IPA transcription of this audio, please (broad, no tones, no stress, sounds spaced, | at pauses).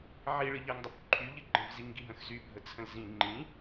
ʕ i ɭ ɨ ʎ ɐ ŋ dˤ ə p ǃʰ y ʎ ɨ ɡ͡ǃ ə̃ v z i ŋ ɡ i ɦ ə̃ x z y bʱ ə t͡sʰ ə̃ l z ĩ ŋ͡ǃ ĩ